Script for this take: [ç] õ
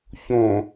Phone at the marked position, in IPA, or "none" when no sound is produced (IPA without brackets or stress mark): ç